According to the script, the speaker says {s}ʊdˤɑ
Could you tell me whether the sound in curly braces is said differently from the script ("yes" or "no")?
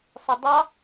yes